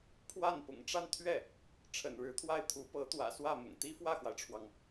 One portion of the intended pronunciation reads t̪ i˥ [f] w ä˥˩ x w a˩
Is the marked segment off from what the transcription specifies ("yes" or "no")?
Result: no